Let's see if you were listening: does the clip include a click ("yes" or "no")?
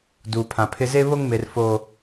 no